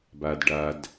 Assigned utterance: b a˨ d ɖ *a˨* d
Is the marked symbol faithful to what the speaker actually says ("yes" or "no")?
yes